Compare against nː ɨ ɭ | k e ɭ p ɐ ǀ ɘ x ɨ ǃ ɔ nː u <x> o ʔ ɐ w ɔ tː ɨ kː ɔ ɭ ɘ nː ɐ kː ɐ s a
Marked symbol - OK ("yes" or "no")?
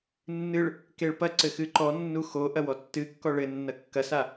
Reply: yes